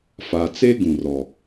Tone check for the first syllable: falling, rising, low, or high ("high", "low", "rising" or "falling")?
low